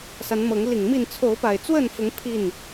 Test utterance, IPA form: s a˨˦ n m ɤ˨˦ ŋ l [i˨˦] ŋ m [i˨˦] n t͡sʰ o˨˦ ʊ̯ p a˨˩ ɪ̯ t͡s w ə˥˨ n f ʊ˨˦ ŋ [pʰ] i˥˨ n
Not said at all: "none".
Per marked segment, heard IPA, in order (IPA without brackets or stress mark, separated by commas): i˨˩, i˥˨, pʰ